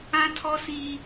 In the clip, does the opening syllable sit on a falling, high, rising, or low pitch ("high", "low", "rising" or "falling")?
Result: high